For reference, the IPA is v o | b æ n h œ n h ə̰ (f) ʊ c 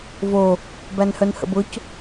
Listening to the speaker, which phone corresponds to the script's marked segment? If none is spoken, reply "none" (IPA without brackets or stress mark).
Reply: b